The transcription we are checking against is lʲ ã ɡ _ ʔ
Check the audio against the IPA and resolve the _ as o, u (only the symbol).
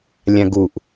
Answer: u